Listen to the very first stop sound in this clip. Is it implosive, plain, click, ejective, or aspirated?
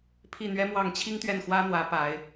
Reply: aspirated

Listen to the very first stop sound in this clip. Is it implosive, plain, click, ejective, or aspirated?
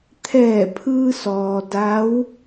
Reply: aspirated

